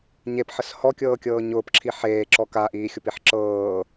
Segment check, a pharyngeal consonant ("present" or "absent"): present